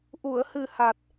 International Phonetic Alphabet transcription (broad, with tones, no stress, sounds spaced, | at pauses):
ʔ u˨˩˨ ə̯ h ɨ˨˩ h a˨˩ t̚